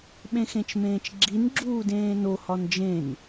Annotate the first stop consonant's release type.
implosive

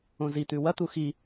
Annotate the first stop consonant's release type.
plain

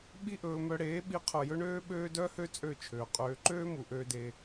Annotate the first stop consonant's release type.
implosive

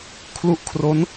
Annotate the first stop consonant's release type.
aspirated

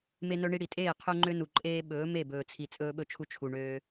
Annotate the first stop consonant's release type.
ejective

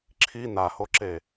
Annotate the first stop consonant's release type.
click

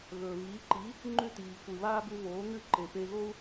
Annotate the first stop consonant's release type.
click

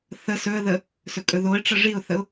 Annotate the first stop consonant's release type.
ejective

